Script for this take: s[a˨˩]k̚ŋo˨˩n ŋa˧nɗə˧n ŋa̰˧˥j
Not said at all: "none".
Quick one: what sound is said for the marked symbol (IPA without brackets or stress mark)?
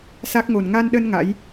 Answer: a˦˥